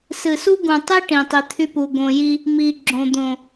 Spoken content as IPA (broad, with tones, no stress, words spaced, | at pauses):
sɨ˨su˦ɡũ˨tˤi˦ ʈĩ˨tˤi˨t̪ʰy˦pu˨ ɡõ˨ji˦ | mi˨ ɡ͡ǁõ˨ d̪õ˨